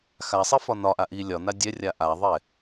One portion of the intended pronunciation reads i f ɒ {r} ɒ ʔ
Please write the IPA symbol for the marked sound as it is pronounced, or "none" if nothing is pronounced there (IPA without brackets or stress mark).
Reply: n